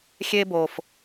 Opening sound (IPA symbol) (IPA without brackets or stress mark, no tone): xʲ